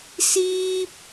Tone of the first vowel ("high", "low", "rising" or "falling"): high